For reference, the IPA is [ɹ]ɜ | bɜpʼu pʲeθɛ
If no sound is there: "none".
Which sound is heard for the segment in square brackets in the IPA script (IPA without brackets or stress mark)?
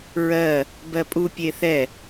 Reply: ɹ